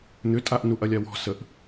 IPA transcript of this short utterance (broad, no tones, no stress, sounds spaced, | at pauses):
n̪ ʏ tʼ a ʔ n u ʔ ɐ lʲ a w ɔ̤ s ə ʔ